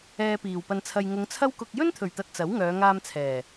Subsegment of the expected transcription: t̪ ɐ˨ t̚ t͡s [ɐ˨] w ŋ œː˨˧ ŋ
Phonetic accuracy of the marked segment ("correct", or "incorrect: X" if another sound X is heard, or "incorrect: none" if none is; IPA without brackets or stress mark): incorrect: ɐ˨˥